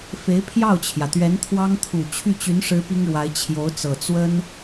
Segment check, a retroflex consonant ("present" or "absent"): present